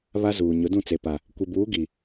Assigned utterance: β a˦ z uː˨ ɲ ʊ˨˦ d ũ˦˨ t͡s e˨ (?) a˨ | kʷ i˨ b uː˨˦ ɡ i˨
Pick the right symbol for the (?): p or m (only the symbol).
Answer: p